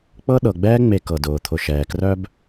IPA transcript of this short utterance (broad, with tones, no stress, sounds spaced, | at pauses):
k͡p ɤ˥ ɗ ɤ˩ ɡ͡b ɛː˥ ŋ͡m e˨ k ɤ˩ d ʊː˩ t̪ʰ ʊ˨ ʃ ɛː˩ k r œ˥ b